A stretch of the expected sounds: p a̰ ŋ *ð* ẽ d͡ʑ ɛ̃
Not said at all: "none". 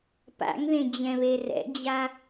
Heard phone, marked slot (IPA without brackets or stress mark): ð